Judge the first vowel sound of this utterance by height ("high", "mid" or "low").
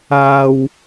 low